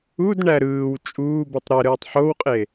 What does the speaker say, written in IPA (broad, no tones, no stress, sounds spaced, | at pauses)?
u d ɳ æ ɾ ɯː w t͡ʃʼ uː b ɯ tˤ ɾ e ɾ ɯː tˤ ħ o w qʼ e